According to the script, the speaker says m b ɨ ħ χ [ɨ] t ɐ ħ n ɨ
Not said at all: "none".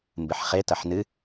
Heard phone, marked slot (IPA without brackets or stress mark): e